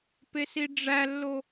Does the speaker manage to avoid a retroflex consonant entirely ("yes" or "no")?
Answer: no